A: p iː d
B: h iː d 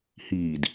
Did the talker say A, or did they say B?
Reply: B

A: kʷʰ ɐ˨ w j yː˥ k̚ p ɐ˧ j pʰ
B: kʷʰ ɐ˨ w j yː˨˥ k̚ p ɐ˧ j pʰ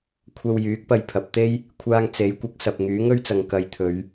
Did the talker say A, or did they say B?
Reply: B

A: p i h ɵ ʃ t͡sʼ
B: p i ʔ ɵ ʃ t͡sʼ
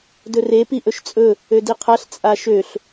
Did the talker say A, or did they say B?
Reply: B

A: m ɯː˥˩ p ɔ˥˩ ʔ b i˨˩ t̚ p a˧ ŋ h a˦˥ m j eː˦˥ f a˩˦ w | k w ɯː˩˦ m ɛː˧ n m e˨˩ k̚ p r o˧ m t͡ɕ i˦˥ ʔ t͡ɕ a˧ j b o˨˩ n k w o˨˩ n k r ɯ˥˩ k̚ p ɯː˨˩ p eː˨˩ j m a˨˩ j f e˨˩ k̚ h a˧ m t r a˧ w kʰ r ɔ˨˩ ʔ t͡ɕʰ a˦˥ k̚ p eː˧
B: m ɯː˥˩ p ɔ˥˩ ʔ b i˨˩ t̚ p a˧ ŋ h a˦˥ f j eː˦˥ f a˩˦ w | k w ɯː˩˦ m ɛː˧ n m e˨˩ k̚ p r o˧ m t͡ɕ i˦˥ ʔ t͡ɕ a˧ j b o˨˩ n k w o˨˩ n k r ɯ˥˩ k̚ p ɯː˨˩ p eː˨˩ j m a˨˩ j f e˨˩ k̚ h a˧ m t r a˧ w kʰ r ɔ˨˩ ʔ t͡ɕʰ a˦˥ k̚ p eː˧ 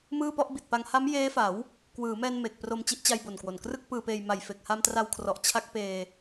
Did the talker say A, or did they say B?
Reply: A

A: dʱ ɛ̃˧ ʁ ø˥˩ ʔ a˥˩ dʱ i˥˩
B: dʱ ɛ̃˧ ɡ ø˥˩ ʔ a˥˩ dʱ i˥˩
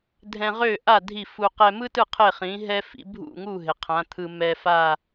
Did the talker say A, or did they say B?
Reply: A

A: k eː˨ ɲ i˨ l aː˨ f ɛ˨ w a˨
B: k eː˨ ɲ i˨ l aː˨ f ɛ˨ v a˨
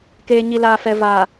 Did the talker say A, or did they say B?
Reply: B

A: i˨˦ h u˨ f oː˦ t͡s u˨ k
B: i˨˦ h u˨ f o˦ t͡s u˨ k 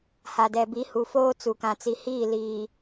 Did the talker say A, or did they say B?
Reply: A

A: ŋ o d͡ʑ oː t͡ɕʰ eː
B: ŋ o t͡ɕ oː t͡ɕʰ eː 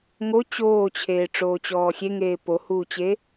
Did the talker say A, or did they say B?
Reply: B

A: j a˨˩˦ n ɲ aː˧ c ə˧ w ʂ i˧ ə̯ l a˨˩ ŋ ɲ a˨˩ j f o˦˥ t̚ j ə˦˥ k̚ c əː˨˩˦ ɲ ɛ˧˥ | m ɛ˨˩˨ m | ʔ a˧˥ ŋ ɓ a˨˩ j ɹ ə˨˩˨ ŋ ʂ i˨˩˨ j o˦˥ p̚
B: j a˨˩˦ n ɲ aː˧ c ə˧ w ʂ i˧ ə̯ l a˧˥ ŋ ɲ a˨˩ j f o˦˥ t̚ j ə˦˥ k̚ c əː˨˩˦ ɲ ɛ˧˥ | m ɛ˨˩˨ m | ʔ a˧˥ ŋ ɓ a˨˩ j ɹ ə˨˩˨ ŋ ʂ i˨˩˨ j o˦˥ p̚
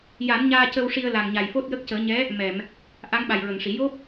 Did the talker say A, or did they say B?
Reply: A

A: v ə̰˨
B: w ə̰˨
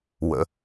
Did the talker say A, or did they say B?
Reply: B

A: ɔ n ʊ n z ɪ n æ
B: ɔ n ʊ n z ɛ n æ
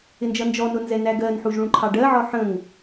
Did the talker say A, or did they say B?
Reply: B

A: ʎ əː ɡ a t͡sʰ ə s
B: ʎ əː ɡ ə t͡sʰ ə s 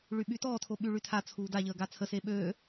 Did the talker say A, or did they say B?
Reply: A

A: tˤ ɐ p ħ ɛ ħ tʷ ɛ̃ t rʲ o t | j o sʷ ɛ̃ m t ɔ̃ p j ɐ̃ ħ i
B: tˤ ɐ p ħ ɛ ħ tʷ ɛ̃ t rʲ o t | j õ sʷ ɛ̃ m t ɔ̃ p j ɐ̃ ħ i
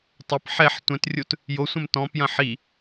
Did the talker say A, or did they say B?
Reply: A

